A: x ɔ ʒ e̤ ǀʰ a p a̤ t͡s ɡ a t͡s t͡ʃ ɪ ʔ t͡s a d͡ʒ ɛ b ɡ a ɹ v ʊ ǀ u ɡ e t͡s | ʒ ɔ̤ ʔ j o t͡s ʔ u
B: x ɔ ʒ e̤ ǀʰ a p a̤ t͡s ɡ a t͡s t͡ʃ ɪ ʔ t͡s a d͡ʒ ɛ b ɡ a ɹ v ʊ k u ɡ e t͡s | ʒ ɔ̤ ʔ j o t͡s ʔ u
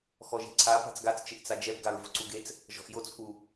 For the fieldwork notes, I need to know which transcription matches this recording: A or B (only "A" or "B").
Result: A